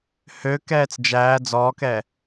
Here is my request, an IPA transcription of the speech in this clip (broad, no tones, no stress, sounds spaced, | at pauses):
h ø k ɛː t͡s d͡ʒ æː d͡z ɔː k ɛ